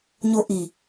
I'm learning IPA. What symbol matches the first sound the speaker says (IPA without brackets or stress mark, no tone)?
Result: ɲ